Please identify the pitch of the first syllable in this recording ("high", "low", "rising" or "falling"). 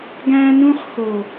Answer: high